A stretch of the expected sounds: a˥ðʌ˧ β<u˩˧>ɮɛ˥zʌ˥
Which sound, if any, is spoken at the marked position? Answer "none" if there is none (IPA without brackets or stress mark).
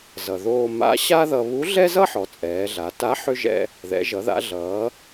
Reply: u˧˥